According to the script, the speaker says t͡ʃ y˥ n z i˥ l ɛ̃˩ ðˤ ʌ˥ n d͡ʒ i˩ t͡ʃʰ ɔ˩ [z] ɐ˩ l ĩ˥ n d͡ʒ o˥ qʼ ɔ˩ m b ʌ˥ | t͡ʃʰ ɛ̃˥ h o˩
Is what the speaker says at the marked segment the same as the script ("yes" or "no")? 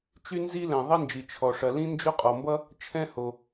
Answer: no